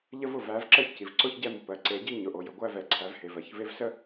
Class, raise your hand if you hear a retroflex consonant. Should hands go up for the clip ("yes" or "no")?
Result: no